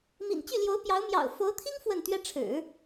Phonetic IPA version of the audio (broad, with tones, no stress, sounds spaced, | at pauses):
m ḭ˨˩ n t͡ɕ y˥˩ l j o˧˥ ʊ̯ p j ɑ˧˥ ʊ̯ m j ɑ̰˨˩ ʊ̯ f o˧˥ ʊ̯ t̪ʰ i˥ ŋ f w ə˥˩ n t̪ ɥ ɛ˥ ʈ͡ʂʰ ɻ̩˨˩˦